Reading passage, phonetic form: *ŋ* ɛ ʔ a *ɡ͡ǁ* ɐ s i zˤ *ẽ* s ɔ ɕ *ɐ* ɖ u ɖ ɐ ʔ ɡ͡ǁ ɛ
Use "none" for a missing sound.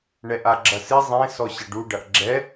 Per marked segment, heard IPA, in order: ɳ, ɡ͡ǁ, ẽ, ɐ

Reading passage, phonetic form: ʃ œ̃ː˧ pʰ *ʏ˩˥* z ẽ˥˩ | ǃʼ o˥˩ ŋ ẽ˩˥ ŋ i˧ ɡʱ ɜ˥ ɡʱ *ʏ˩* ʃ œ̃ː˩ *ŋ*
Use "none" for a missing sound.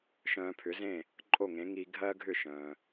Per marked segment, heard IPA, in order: ʏ˩˥, ʏ˥˩, none

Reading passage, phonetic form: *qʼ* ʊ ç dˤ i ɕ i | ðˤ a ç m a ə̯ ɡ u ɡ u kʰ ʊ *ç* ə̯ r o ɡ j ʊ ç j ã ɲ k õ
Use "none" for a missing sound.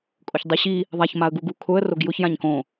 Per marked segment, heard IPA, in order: kʼ, none

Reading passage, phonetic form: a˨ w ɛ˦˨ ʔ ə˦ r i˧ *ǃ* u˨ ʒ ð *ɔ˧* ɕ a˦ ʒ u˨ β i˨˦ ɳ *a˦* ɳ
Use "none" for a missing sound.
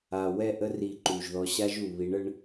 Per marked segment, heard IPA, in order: ǃ, ɔ˧, ə˦

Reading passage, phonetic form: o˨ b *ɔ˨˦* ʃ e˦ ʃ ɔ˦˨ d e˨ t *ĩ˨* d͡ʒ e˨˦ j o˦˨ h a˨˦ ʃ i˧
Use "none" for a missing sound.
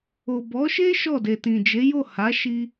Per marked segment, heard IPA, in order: ɔ˨˦, ĩ˨

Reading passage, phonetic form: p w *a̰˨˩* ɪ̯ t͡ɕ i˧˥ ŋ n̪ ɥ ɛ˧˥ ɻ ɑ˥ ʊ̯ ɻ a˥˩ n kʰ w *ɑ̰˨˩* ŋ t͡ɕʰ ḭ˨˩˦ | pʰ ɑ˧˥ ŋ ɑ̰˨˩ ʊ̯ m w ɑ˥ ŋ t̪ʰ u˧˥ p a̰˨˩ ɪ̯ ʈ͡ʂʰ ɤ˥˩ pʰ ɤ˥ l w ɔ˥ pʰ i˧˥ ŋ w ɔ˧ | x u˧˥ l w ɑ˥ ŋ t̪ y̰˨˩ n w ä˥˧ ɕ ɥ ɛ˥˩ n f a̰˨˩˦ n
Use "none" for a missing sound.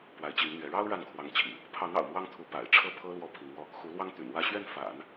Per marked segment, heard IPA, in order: a˧˥, ɑ˧˥

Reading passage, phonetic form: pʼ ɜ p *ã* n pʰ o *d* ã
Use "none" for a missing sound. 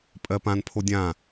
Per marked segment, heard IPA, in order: ã, dʲ

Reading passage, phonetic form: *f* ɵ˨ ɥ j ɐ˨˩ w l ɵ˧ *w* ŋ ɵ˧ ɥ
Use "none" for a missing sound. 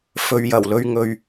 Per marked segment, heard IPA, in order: f, ɥ

